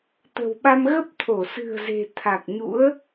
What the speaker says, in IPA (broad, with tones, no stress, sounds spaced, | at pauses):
t̪ ə̤˨˩ w ɓ a˧ m ɣ ə˦˥ p̚ t̪ʰ o˧˩ s ɨ̤˨˩ ə̯ z e̤˨˩ t̪ʰ a˨˩ k̚ ɲ ṵ˧˥ ə̯